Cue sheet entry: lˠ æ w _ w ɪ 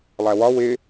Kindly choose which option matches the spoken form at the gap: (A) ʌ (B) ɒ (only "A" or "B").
B